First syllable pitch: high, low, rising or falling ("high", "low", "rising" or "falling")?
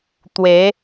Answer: rising